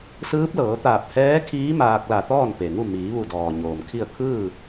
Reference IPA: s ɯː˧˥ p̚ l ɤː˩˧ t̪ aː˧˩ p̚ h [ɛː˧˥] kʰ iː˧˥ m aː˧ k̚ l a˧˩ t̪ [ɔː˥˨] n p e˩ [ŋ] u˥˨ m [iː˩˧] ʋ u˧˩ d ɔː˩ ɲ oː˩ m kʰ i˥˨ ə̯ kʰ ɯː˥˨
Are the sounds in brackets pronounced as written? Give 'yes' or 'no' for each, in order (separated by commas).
yes, yes, yes, yes